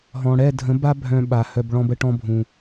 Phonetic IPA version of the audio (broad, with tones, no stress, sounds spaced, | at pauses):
ɦ ɔ̃˨ ɽ ɛ˦˨ dʱ ə̃˨˦ b a˦ bʱ œ̃˧ ɓ a˨ h œ˧ b ɭ ɔ̃˦ b ə˧ ʈ ɔ̃˧ bʱ ũ˨